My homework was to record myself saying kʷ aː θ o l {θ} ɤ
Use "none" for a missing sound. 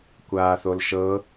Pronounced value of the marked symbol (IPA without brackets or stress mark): ʃ